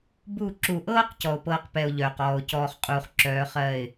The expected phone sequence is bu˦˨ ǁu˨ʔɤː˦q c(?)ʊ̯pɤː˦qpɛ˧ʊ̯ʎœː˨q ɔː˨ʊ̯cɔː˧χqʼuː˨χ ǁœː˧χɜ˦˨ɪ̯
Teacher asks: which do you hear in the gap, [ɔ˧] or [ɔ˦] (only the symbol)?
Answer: ɔ˧